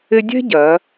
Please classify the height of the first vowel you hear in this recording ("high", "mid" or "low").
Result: high